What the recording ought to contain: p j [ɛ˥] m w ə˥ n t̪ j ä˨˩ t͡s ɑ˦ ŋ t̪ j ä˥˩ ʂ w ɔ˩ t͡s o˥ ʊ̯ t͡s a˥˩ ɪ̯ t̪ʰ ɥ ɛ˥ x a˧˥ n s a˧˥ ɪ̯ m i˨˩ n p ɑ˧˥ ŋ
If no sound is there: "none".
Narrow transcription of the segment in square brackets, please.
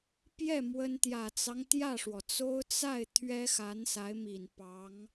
ɛ˥˩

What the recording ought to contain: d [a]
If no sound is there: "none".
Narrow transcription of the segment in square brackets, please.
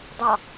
ɑ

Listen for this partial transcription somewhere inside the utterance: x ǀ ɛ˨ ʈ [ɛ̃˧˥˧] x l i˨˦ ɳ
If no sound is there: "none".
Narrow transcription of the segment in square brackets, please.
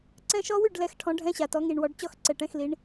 ɛ̃˧˥˧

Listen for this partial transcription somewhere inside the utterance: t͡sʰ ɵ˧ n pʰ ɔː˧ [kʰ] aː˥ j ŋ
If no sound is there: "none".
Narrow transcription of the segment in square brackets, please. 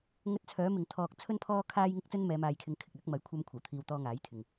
kʰ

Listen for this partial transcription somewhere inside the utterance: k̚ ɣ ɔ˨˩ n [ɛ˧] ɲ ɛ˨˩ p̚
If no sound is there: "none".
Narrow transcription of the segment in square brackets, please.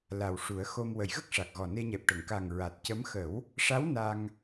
e˧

